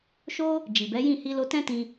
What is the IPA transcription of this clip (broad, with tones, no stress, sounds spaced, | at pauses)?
ʃ o˦ | d͡ʒ i˨ b ɛ˨˦ j ĩ˦˨ h i˧ l o˧ t ɛ̃˦ t ĩ˧